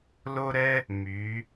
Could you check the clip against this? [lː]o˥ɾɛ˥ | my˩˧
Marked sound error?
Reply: yes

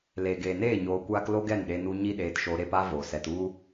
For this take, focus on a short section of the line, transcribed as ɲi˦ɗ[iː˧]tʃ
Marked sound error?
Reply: yes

